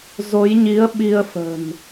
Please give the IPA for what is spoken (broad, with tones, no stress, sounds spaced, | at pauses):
z o˨˦ j ɲ i˨˦ ə̯ ɓ i˧ ə̯ f ə̤˨˩ n